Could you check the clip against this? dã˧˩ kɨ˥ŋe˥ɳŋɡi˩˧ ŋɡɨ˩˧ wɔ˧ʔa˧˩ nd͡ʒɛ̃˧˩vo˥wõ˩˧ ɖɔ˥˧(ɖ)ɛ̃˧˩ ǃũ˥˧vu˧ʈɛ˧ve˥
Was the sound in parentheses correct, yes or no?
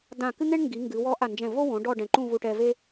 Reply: yes